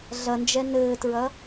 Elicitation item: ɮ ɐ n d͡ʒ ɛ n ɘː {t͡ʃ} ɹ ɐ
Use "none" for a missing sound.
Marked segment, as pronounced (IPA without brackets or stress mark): t